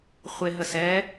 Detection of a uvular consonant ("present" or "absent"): present